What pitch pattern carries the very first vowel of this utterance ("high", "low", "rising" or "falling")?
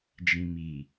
low